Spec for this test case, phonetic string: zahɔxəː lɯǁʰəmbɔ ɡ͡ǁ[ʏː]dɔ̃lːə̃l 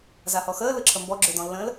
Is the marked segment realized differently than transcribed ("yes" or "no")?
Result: no